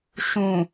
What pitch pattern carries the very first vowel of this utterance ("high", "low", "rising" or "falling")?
low